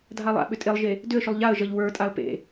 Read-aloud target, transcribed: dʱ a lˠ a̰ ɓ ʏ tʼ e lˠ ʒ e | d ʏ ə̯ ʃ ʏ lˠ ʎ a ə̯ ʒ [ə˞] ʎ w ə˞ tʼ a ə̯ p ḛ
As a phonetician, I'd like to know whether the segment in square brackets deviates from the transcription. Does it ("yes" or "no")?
yes